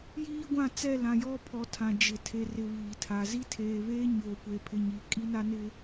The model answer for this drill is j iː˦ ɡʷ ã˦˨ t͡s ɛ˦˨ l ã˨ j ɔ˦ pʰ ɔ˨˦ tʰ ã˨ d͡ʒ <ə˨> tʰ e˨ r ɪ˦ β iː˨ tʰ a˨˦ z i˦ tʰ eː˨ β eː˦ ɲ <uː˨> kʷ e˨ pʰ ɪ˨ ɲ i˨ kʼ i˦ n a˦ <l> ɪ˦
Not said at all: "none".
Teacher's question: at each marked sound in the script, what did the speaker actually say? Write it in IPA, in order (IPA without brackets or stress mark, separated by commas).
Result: ɪ˨, oː˨, n